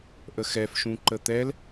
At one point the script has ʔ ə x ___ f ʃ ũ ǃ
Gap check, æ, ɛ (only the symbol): ɛ